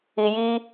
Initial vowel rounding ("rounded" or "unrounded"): unrounded